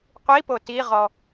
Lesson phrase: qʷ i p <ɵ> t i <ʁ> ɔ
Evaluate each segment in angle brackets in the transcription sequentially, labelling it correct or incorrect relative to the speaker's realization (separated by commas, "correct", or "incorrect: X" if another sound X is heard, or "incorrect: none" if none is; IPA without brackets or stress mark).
incorrect: o, correct